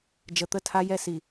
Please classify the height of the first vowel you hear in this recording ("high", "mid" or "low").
mid